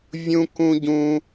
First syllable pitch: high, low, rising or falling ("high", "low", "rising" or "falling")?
high